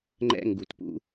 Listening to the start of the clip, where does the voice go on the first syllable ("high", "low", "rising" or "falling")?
high